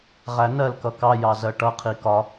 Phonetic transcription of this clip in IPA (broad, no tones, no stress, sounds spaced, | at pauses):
ʁ æ n ɜ l k ʌ k ɑ j ɑ z ɜ ʈ ʌ qʰ i k ɒ